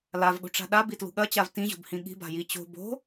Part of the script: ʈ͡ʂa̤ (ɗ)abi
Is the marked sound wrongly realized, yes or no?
no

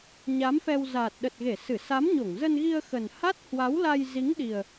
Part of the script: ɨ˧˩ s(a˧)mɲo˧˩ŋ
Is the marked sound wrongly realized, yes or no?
yes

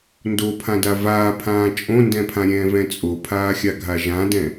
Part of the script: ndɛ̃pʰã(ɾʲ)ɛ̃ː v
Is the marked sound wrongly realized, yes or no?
no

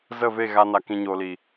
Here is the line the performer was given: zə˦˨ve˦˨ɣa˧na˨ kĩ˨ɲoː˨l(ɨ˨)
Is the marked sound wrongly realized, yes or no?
yes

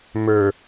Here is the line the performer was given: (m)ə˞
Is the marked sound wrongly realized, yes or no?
no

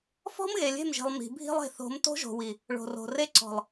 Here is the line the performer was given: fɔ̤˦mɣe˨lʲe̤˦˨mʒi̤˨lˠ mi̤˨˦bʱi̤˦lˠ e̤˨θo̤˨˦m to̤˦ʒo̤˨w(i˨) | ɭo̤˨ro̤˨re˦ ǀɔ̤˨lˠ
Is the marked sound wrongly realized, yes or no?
no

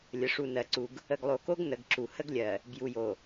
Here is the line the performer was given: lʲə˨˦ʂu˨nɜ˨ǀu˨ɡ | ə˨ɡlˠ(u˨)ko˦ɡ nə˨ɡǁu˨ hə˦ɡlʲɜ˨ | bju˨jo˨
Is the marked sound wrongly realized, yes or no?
yes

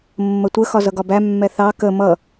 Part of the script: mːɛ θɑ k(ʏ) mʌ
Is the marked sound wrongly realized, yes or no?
yes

